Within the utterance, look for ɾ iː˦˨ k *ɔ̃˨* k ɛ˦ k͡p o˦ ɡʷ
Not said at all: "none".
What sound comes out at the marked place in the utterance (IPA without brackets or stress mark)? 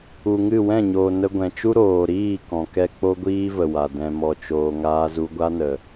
ɔ̃˨